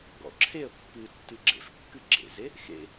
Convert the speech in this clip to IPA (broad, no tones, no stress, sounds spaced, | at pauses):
ɡ ɔ̰ ǁʰ e ə̯ pː ɨ tː ɨ ɡ͡ǁ ḛ f kː ɨ ɡ͡ǁ ḛ z e | x ḛ